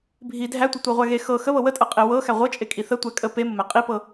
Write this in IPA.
bʱ i dʱ æ tʷ ə tʷ ɤ ʁʷ æ ɣ e x ɤ x ə β ɤ w ə tʼ ɤ qʼ e w ɤ x æ ʁʷ ɤ t͡ʃʼ e kʼ i θ ə tʷ æ kʼ ə p e m ə m æ qʼ i p ɤ

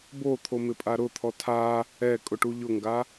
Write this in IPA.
b o t̪ʰ o m ɪ pʼ a ɾ ʊ t̪ʰ ɔ tʰ a | ɛ kʼ ʊ ʈ u ʎ ʊ ŋ ɡ a

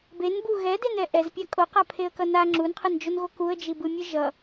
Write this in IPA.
b e n b u ɣ ɛ d e n ɛ ʔ ɛ z pʲ a kʼ o q a pʰ e ə̯ k ʌ n a ŋ͡ǁ u n qʰ ɯ n d͡ʒ o n ɣ o k u ə̯ d͡ʒ i b ɯ mʲ ɯ ʒ ʌ

